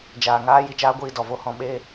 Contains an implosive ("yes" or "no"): yes